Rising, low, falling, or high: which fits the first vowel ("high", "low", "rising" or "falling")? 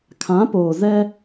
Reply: rising